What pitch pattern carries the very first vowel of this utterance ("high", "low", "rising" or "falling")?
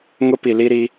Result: high